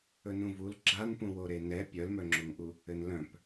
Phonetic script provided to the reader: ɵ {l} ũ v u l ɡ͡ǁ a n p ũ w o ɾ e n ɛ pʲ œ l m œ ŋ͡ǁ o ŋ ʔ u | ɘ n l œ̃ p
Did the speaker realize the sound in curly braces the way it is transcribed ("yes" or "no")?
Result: no